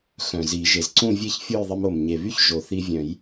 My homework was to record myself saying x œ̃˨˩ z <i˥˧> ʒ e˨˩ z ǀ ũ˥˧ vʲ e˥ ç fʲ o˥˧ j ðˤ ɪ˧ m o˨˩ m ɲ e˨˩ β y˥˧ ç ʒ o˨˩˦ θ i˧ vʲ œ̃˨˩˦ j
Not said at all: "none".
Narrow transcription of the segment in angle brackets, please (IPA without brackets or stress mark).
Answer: i˨˩˦